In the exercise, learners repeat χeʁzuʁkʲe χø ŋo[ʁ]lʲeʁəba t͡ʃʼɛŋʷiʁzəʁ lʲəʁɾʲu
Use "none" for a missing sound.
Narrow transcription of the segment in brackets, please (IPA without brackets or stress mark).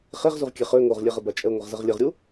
ʁ